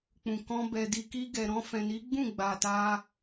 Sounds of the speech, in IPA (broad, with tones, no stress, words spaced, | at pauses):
k͡pũ˨kɔ̃˧ bɛ˨di˨ki˧ɡɛ˨ ɾɔ̃˧fɛ̃˨ni˨˦ɡ͡bũ˦˨ ɡ͡ba˨ta˧